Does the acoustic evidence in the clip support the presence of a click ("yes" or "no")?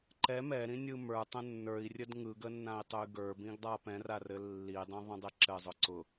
yes